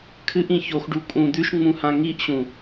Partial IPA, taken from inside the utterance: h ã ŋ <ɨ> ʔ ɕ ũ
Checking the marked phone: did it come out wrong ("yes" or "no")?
yes